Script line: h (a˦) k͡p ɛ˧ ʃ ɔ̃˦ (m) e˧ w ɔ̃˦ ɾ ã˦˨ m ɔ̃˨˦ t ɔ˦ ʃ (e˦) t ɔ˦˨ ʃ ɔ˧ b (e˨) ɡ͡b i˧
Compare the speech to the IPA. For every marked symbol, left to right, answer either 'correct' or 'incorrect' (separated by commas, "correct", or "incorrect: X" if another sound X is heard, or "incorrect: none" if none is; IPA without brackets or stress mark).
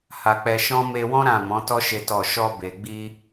incorrect: a˧, correct, correct, correct